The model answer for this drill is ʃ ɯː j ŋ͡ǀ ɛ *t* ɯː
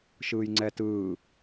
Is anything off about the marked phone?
no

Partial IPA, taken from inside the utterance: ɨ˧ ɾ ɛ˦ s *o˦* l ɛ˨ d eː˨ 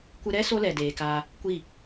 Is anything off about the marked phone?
no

